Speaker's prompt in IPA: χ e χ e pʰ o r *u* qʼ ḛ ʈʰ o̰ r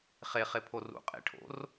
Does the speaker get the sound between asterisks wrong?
yes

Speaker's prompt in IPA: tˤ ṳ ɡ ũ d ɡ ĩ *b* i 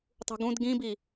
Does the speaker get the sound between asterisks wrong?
no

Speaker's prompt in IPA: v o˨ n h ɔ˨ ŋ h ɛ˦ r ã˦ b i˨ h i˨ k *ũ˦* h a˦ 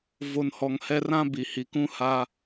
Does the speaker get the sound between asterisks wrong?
no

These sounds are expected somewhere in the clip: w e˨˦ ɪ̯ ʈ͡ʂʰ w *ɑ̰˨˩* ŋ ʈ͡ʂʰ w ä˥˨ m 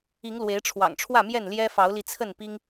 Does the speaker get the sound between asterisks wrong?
no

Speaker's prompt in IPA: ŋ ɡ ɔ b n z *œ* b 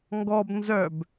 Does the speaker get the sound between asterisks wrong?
no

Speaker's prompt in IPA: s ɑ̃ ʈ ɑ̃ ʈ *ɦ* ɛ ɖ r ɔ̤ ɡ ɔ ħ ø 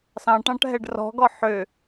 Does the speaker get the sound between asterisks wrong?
no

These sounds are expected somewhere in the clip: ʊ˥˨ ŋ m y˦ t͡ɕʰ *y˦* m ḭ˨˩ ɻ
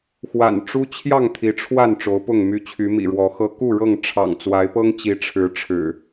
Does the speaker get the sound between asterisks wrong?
yes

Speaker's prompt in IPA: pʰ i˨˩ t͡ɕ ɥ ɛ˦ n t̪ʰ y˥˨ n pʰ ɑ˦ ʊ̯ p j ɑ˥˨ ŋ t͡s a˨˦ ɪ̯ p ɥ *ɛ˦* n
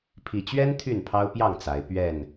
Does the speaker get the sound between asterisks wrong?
yes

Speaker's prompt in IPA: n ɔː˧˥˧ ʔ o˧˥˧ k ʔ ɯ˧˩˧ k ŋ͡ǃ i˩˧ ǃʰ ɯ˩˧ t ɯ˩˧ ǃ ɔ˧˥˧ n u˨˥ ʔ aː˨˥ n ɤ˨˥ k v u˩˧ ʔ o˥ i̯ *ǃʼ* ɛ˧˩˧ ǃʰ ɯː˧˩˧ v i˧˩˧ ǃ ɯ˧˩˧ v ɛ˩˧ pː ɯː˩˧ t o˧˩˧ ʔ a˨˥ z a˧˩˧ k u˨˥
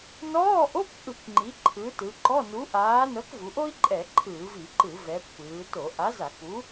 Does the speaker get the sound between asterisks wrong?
no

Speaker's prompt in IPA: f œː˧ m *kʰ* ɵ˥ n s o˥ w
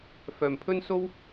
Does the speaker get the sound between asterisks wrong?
yes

